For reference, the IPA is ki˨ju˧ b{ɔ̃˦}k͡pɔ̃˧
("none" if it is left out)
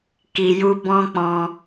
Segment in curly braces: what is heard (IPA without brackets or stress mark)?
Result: ɔ̃˦